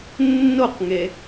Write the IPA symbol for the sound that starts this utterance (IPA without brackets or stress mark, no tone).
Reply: nː